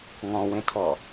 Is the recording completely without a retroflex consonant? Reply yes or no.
yes